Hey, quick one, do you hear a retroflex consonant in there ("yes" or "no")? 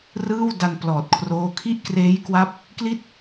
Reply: no